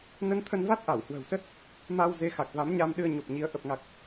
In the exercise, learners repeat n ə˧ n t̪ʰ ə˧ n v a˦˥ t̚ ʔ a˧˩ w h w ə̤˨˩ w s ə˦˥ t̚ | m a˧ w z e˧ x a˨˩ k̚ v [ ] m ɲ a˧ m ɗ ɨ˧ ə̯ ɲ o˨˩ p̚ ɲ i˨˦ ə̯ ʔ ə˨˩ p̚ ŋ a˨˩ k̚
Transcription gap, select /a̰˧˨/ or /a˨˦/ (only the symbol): a˨˦